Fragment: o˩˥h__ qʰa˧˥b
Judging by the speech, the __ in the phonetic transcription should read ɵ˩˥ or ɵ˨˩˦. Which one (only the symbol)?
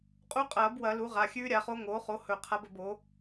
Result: ɵ˨˩˦